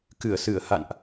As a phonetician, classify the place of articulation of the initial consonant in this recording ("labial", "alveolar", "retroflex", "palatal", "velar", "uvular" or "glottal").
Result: velar